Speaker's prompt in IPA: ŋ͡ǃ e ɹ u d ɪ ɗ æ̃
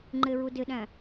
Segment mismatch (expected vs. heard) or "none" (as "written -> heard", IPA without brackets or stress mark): none